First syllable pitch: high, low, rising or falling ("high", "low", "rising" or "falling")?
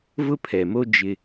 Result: high